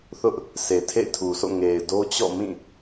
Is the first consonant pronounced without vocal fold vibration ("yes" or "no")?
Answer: yes